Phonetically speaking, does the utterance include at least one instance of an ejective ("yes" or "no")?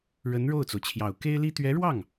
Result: no